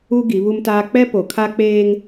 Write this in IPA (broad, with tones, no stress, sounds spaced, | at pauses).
u˦ ɡ i˨˦ β u˦ m t aː˦ k͡p ɛ˦ p o˨ kʰ a˦ k͡p eː˦ ŋ